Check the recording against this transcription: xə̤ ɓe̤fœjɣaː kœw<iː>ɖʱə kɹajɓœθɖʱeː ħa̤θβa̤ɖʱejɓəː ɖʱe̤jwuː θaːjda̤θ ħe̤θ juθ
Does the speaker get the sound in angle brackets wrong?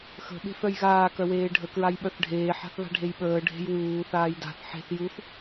yes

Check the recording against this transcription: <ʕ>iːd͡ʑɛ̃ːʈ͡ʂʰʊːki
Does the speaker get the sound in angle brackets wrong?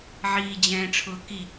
no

